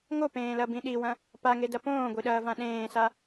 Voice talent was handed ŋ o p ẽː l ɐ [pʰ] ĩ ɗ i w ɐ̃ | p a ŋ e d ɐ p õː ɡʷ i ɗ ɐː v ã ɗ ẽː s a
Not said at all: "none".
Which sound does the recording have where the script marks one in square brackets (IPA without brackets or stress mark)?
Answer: b